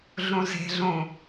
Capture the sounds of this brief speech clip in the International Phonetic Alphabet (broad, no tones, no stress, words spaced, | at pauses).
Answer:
ɮũze̤ɮũ